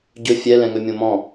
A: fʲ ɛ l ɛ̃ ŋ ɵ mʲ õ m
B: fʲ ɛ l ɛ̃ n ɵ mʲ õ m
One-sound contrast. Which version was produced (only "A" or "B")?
A